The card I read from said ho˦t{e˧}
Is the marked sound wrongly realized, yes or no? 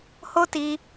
yes